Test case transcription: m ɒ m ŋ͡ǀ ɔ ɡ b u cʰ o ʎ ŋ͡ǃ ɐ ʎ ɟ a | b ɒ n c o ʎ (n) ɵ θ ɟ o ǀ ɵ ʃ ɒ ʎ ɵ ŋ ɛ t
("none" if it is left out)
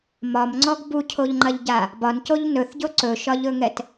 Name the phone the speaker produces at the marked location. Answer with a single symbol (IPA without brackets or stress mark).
n